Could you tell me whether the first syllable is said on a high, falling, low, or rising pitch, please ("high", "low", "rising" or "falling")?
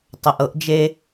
low